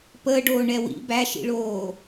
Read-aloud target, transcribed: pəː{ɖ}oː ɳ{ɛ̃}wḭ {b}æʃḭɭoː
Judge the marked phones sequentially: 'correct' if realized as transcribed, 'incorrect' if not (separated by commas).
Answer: correct, incorrect, correct